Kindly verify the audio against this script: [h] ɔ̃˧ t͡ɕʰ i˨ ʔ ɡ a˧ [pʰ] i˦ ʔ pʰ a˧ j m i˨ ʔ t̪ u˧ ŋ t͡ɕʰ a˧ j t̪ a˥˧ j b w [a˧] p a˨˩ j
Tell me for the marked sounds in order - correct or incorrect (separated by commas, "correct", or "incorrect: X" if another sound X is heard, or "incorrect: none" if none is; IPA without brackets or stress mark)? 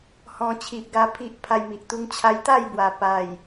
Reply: correct, correct, incorrect: a˨˩